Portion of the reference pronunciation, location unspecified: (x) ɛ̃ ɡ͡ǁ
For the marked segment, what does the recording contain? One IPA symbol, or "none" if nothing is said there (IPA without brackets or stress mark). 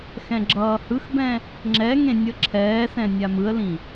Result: x